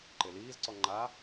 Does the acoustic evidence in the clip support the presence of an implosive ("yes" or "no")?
no